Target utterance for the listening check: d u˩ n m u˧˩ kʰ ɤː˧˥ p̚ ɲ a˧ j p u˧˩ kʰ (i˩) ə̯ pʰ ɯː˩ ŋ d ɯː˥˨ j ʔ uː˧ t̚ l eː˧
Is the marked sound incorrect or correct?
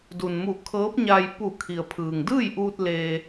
correct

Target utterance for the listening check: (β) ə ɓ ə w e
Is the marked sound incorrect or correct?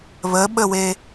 correct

